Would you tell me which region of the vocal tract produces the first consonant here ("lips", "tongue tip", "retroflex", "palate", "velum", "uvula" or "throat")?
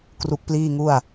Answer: velum